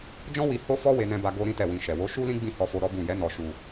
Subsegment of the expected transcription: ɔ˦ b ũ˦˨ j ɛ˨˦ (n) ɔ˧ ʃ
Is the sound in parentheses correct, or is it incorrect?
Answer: correct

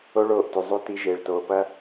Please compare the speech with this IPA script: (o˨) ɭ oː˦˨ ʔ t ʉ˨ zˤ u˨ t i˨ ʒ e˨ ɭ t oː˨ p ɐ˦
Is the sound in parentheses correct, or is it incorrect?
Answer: incorrect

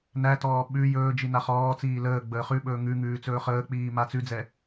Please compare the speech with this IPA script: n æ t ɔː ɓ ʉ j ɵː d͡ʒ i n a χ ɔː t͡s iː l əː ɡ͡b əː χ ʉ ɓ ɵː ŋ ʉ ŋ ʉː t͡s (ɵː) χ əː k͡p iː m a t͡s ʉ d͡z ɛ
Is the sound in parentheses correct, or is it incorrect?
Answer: correct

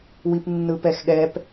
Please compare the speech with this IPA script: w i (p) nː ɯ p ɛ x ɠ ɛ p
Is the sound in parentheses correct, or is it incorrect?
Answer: correct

